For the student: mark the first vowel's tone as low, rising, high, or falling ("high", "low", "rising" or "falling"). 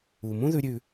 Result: low